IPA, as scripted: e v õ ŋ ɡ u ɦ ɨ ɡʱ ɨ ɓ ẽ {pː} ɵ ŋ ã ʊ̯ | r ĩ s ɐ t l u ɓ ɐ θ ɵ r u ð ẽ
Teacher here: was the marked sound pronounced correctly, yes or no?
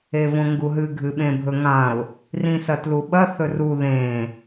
no